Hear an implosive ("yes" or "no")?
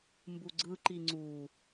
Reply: no